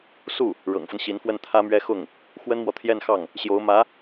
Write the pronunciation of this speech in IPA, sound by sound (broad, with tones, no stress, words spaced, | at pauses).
su˥˩ | ɻɤ̰˨˩ŋfə˦n ɕi˧˥nfwə˥˩nt̪ʰä˥mɥɛ˥ xʊ˥˩ŋ | xwə˥nmwɔ˨t̪ʰjɛ˥˧nxɑ˥˩ŋ | ɕjo˧˥ʊ̯mä˧˥